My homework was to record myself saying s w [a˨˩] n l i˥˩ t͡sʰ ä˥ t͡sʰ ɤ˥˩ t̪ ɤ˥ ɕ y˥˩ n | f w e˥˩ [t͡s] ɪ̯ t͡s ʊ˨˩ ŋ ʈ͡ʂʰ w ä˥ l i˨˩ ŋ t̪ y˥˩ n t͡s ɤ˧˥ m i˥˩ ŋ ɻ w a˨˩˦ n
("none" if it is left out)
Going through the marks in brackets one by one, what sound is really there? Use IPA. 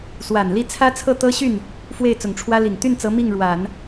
a˨˩, none

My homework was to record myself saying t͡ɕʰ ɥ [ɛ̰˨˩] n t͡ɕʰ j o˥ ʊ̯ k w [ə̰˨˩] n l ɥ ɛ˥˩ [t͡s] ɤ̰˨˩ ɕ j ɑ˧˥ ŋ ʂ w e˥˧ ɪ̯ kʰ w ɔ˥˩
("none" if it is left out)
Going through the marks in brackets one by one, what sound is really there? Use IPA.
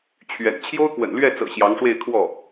ɛ̰˨˩, ə̰˨˩, t͡s

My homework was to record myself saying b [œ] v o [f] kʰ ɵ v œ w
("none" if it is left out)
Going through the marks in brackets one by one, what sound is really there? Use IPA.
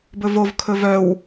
ɵ, v

